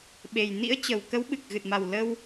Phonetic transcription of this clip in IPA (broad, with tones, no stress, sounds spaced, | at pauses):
ɓ e˨˩ j n ḭ˧˥ ə̯ t͡ɕ ə˨˩ w k ə˨˦ w ɓ ɨ˨˩ k̚ ɣ ɨ˨˩ t̚ m a˨˩ w l ə˧ w